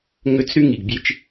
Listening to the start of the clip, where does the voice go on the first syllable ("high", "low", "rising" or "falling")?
high